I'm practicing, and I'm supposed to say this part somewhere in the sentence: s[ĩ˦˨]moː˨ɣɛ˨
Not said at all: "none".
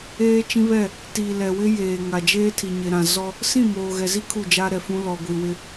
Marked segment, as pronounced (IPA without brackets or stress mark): ĩ˦˨